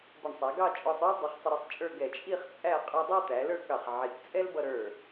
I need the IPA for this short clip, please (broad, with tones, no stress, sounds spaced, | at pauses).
b ə˧˩ ɳ sˤ æ˩˧ ɡ ɑ˥˧ t͡ʃʼ ɔ˧ sˤ ə˞˥ l dˤ ə˩˧ χ sˤ ə˧ ɾ i˧ sˤ t͡ʃʼ ə˞˥˧ ɡ ɛ˧˩ t͡ʃʼ i˥˧ χ t͡sʼ æ˥˧ qʼ ə˞˧ dˤ ɑ˥˧ t̪ æ˩˧ l ə˞˥˧ k ɑ˧˩ χ ʕ i˧˩ k t͡sʼ ɛ˥ l b ʌ˧ ɾ ə˞˧˩